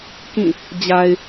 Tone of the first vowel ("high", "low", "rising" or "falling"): falling